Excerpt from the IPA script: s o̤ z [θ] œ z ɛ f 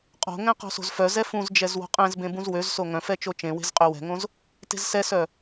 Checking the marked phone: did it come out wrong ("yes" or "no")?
yes